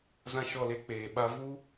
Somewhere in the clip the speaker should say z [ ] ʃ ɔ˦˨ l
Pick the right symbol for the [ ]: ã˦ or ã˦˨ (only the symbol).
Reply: ã˦